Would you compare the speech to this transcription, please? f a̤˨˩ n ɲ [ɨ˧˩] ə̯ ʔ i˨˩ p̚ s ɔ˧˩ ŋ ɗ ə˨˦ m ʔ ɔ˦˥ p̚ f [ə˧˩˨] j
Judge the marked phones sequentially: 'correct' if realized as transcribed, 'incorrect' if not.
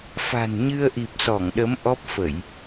incorrect, correct

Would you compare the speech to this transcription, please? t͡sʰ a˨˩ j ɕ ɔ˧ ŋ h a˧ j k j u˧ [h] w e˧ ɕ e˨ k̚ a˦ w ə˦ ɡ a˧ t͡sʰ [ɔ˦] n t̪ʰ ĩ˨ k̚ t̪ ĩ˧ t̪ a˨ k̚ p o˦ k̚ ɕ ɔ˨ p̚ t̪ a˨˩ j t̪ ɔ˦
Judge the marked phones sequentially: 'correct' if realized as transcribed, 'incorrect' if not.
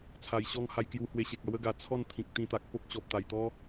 correct, incorrect

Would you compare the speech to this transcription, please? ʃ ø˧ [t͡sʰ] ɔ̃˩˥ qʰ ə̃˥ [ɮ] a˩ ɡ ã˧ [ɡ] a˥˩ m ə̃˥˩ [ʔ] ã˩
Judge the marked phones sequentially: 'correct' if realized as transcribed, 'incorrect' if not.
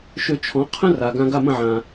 incorrect, incorrect, correct, incorrect

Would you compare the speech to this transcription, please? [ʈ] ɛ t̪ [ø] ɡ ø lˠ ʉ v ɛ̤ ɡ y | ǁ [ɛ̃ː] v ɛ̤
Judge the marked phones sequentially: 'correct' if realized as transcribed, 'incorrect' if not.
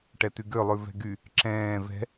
correct, incorrect, correct

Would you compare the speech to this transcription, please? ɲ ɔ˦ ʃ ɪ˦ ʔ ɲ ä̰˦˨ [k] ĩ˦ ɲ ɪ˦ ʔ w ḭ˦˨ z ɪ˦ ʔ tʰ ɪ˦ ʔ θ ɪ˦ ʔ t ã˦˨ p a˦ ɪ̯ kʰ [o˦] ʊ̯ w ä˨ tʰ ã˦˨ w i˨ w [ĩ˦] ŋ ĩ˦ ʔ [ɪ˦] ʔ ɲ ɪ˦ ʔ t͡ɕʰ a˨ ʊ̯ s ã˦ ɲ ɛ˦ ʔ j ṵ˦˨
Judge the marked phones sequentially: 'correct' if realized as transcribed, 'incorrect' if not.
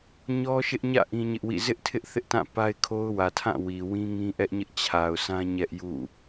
incorrect, correct, correct, incorrect

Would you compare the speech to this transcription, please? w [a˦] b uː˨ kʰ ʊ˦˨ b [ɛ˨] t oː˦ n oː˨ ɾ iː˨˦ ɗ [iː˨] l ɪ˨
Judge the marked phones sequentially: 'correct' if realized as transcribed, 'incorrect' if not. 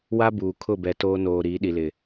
correct, correct, incorrect

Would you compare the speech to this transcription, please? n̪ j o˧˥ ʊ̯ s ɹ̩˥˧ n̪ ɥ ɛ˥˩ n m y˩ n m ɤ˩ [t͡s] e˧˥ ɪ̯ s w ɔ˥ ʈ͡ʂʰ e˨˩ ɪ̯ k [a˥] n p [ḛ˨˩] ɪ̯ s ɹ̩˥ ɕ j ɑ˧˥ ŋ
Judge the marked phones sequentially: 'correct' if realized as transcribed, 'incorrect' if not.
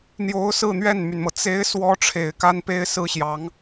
correct, correct, incorrect

